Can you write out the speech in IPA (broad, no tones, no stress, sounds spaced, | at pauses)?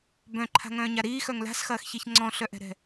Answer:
b œ̃ ǃʰ a̤ ŋ œ̃ː ɲ a ɾ iː x œ ŋ l a̤ s x ɐː x ç i ç ŋ͡ǀ ɔ̃ ɬ œ ʔ ɛ̤ ɾ ɛ̤